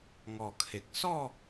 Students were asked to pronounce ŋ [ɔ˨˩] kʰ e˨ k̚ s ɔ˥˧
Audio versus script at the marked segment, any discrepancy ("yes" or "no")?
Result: no